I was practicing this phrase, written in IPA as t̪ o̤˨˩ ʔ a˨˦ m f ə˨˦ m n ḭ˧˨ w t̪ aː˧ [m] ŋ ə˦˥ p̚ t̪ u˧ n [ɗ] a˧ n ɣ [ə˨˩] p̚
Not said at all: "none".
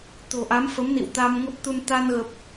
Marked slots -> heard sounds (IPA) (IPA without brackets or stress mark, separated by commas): m, t̪, ə˨˩